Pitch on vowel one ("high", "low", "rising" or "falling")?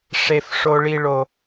low